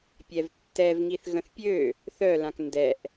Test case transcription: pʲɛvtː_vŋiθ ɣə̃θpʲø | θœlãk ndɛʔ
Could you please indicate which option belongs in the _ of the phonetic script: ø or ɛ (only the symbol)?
ɛ